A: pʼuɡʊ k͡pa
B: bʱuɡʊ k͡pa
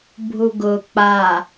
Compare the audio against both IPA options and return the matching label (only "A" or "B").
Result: B